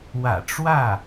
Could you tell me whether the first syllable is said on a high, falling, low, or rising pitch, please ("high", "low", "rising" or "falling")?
low